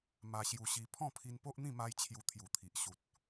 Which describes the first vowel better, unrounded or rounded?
unrounded